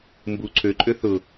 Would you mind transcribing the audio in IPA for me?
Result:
m b u ǀʰ ø ǃʼ ø θ ʊ

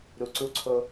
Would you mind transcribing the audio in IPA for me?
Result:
ɾ u˨ ǀ u˧ ǀʰ o˧

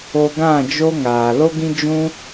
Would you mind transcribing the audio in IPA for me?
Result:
o˧ ɡ ã˦˨ d͡ʒ o˧ ŋ aː˨ l o˦ ɡ ĩ˦ d͡ʒ ũ˦

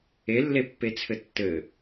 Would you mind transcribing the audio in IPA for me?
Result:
e lː e pː e t͡sʰ ɘ tː ɘ

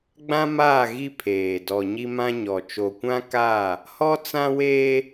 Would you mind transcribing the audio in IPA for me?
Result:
ɡ͡b ã˦ m aː˦˨ ɣ i˦ pʰ eː˨ d ɔ˨ ɲ i˦ m ã˦ ɲ ɔ˨ t͡ʃ o˨ kʷ ã˦ k aː˦˨ | h ɔ˦ t͡s ã˦ w eː˦

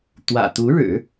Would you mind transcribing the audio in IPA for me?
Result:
t̪ w ä̰˨˩ t̪ u˧˥ ɻ ɻ̩˨˩˦

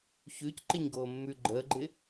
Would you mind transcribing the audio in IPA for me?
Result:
ç ʉ c ǃ ɪ ɲ ɡ oː mː ʉ ɡ͡ǃ əː ɡ͡ǃ ɪ

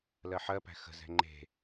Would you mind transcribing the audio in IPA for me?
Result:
l ɜ ħ ɜ p æ̤ x ə̤ z ɛ̤ ŋ͡ǃ e̤

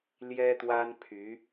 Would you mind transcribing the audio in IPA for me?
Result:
l j ɛ˥ t̪ w a˥ n pʰ y˧˥

